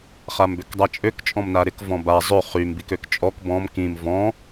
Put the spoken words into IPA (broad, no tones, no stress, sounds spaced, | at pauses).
χ a m b ø k dˤ a t͡ʃʼ ø k t͡ʃʼ ɔ̃ m n a ɾ ɪ k v ɔ̃ b a zˤ ø χ y m b i k ø k t͡ʃʼ ɔ k b ɔ̃ m k ĩ m v ɔ̃